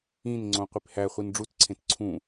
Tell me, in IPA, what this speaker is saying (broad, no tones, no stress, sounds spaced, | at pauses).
ĩ n ŋ͡ǀ õ qʷ i p h æ χʷ i n ɖ͡ʐ u t ǀʰ ẽ t ǀʰ ũ